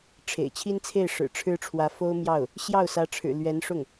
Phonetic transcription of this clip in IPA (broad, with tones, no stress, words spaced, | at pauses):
ʈ͡ʂʰḛ˨˩ɪ̯ t͡ɕʰi˥nt͡sʰe˥˩ɪ̯ʂɻ̩˨˩ ʈ͡ʂʰɻ̩˥ʈ͡ʂʰwä˧˥ fo˥ʊ̯mjɑ˥˩ʊ̯ | ɕjɑ˥˩ʊ̯sä˧˥ʈ͡ʂʰɻ̩˨˩ lɥɛ˧˥nʂʊ˥˩ŋ